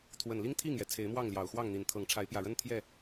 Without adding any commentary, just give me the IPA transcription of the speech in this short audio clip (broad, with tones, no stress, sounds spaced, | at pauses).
t̪ʰ w ə˨˩ n l i˦ ŋ t̪ʰ i˥˨ ŋ j ɛ˩ t͡sʰ e˨˦ ɪ̯ m w ɑ˥˨ ŋ l j ɑ˨˩ ʊ̯ x w ɑ˥˨ ŋ n̪ i˨˩ n t̪ʰ ɤ˨˦ ŋ ʈ͡ʂʰ a˨˦ ɪ̯ p j ä˨˩ ɻ ə˦ n t̪ʰ j ɛ˥˨